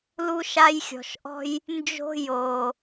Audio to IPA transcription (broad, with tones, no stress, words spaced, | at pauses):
lu˦ʃa˦jxʲɔ̤˨ʃ ʔɔ̤˦j | nd͡ʒo̤˦ joː˨